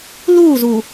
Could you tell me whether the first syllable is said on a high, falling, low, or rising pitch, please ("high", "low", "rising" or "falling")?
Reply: falling